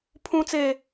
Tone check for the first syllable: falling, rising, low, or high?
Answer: high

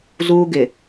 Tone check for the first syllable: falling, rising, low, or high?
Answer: high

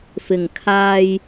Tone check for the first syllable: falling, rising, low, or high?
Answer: low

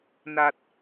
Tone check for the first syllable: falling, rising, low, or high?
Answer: low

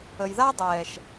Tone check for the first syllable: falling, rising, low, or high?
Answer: low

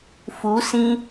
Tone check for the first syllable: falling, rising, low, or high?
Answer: rising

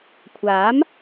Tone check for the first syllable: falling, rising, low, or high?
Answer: rising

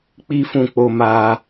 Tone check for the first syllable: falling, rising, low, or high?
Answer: high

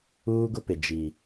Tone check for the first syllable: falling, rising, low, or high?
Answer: high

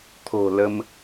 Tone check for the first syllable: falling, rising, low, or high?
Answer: low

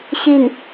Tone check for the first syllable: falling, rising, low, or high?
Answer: falling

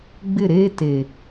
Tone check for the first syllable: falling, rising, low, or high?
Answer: falling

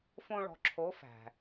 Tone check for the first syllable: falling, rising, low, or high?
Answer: high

